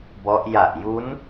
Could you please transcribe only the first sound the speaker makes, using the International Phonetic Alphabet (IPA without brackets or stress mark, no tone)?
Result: b